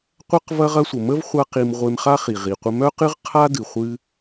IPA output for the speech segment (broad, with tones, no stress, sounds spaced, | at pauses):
qʷ ɐ˥ q v ɐ˥ ʁ ɐ˥ sʷ ə˩ m ə˥ v χʷ a˥ q i˧ m ʁʷ e˧ m χ a˥ χ i˩ ʁ i˩ qʷ ə˧ m œ˥ q ɨ˥ ʁ qʰ a˥ d ɨ˩ χʷ ɨ˧